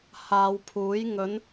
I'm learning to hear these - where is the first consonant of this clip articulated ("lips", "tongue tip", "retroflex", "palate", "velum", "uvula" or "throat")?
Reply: throat